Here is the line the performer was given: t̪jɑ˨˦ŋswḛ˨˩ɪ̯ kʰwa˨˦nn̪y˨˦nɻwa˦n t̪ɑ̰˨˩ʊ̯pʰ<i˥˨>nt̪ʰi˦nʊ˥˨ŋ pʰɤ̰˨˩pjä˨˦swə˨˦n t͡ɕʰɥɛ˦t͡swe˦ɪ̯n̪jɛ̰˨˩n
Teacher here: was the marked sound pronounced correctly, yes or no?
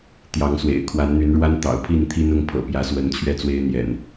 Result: yes